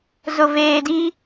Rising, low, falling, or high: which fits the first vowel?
low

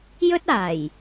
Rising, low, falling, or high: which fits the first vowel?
high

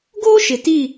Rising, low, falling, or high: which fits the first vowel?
high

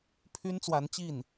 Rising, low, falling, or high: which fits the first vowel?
high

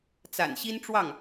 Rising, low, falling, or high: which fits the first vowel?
low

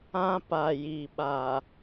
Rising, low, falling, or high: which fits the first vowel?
high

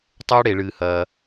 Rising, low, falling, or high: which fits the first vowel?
high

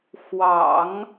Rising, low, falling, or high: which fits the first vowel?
low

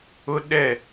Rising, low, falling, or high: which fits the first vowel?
high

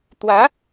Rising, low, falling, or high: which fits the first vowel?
rising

